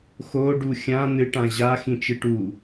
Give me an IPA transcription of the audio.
xoɖu xʲã n̪ɨʈã ʑa xĩt͡ʃɨʈu

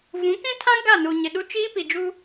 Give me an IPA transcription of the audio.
vũ˨˦kĩ˦tʰã˦ ɡa˦˨nu˨ɲɪ˨ɗu˦ t͡ʃiː˦pi˨d͡ʒu˦

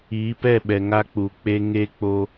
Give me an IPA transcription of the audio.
iː˨˦pɛ˦˨ɓɛ˨ ŋa˦k͡pu˨k͡pe˦ ŋe˦k͡po˦

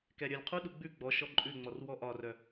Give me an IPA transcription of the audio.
kɛɾʲœlʲqʰuɗu ɡ͡bʉ ɡ͡bɔʃɔ ǃʼʉŋ͡mɔr wɔʔɒrœ

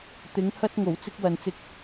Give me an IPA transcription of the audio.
t̪ɪ˨˥ŋ hɐ˥t̚ ŋo˨˩wt͡sɪ˥k̚wɐ˨nt͡sɪ˧k̚

